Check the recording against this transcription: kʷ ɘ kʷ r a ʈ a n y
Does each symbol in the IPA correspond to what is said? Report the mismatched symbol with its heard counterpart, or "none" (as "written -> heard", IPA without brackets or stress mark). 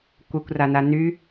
ʈ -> n